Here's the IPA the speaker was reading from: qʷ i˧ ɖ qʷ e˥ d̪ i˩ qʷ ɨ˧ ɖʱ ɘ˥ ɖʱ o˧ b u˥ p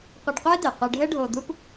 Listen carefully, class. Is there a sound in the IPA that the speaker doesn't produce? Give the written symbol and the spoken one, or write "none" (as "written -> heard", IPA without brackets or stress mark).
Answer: b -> d̪